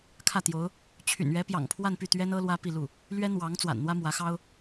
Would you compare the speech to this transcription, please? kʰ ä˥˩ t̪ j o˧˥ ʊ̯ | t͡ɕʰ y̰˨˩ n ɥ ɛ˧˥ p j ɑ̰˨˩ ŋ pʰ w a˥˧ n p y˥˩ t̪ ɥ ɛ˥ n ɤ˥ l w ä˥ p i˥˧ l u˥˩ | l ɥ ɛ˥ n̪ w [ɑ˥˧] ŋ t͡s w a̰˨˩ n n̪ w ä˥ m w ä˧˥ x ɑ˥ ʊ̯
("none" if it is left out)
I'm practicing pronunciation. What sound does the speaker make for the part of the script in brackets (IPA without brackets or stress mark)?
ɑ˧˥